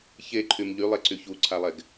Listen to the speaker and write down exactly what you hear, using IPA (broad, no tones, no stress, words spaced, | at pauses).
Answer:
çeǃʰym ʎylˠeǀy çuǀʰalˠɛɡ